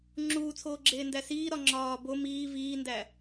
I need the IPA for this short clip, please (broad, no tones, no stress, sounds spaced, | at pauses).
ŋ͡ǁ uː t͡sʰ oː ɡ͡ǁ eː n d æ s iː ɾ ɒ ŋ͡ǁ ɒː b o m iː v iː n d æ